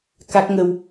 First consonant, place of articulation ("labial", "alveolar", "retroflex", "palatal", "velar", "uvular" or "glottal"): velar